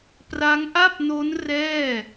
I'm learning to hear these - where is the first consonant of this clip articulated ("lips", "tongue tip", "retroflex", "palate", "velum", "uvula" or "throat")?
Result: lips